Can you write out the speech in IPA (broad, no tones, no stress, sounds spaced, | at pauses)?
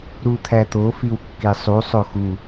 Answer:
ɾ u t̪ʰ æ t̪ o f i w kː e sˤ u sˤ o x u